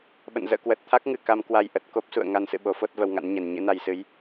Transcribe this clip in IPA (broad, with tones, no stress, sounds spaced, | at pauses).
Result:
ɓ ə̰˧˨ n z ə̰ː˧˨ k w ə˨˩ t̚ t̪ʰ a˦˥ k̚ ŋ ɨ˨˩ k a˧ m k w a˧ j ʔ ə˨˩ t̚ k o˦˥ p̚ s ṵ˧˨ ə̯ ŋ a˧ n s ɨ̰˧˨ ɓ o˨˦ f o˦˥ t̚ v ə˧ w ŋ a̰˧˥ n ɲ ɛ˨˩ n ɲ ɨ̰˧˥ n a˧ j s ɨ˨˦ j